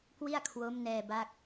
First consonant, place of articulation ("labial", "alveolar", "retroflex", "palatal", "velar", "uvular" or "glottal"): velar